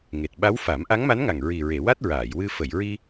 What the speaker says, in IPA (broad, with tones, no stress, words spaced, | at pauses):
ŋe˨˩t̚ɓa˧˥wfa˨˩˦m ʔa˧˥ŋma˧˥nŋa˨˩ŋ ɹi˨˩ɹe˨˩˨ wa˦˥t̚ɹaː˨˩˨jwɨ˧ fə˨˩˨jɹi˧